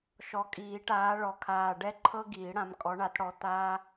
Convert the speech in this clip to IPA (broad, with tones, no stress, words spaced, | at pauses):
ʃɔ˨˩kʼiː˨˩˦ʈaː˨˦ɭɔ˨˩ kʰaː˨˩ ɖɛ˥ǃʰɤ˥ ɡiː˨˩˦ɽã˨˦m kʼɔ˨˦ɳa˨˦tɽɔ˨˦ t̪aː˥